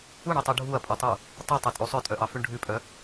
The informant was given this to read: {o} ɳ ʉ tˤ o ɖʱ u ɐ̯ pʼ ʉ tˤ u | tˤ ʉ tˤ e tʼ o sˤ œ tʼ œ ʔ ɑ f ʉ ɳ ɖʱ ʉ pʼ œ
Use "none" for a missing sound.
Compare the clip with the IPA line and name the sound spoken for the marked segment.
u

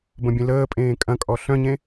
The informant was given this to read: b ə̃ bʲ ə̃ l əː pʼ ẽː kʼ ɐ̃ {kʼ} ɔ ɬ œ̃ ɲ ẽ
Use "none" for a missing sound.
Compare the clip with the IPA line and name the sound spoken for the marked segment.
kʼ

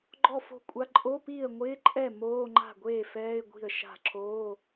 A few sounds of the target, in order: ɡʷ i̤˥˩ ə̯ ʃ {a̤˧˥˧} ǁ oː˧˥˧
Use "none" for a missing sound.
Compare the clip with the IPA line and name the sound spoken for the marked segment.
a̤˥˩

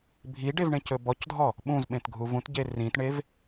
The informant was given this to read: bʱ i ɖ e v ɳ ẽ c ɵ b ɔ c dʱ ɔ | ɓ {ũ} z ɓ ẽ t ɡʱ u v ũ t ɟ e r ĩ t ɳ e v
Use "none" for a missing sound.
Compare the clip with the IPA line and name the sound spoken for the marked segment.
ũ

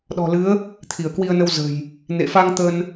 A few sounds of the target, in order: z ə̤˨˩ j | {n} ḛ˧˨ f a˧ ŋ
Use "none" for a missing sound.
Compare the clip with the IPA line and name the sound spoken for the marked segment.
n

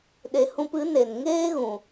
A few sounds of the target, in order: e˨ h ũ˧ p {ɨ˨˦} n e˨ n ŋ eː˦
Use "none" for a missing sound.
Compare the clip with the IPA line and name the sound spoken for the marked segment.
ɨ˨˦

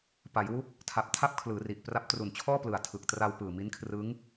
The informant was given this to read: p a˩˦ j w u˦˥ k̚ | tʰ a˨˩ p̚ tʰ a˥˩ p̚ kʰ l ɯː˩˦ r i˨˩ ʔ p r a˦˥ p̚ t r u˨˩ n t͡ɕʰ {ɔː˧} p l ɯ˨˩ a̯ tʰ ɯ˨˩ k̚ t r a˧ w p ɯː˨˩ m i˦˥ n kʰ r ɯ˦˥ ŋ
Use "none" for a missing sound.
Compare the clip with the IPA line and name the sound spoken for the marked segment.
ɔː˥˩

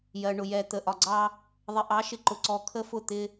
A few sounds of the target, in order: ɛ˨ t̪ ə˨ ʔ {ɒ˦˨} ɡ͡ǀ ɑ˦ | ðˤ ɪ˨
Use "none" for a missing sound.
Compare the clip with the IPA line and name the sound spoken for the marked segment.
ɒ˨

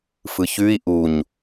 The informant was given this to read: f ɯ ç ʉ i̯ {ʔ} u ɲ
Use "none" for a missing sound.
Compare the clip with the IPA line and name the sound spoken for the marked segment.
ʔ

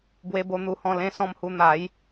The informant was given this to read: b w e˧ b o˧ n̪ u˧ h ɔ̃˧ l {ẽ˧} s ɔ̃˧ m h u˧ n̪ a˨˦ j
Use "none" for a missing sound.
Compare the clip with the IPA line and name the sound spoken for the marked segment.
ẽ˧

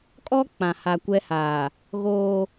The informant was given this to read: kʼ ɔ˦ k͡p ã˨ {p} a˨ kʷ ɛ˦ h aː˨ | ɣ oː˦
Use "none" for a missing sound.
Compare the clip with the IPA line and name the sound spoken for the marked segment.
h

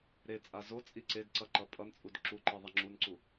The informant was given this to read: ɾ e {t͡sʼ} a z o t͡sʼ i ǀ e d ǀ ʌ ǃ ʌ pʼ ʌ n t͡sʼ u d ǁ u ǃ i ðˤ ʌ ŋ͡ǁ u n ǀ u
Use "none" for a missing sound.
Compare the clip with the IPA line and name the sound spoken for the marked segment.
t͡sʼ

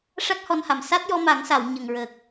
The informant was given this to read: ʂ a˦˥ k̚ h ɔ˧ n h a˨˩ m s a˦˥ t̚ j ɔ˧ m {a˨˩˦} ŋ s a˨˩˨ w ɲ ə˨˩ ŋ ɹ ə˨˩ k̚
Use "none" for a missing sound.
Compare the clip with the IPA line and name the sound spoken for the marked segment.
a˨˩˦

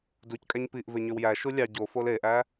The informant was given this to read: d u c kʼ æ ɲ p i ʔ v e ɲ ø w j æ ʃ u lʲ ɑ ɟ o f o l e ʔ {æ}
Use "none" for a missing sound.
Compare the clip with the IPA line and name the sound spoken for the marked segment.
æ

